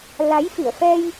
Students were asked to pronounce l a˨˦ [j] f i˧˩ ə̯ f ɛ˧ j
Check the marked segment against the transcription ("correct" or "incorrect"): correct